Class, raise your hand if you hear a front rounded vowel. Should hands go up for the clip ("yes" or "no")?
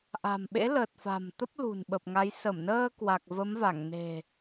no